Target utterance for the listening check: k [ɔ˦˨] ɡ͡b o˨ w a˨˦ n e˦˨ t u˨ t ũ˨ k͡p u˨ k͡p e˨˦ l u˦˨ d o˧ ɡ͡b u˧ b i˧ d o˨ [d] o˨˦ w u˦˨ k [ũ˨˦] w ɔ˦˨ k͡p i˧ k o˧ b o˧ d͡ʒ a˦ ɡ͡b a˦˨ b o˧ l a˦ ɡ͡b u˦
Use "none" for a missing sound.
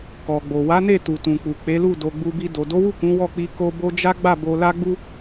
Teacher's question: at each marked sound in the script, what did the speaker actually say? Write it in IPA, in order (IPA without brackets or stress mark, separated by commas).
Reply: ɔ˨, d, ũ˨˦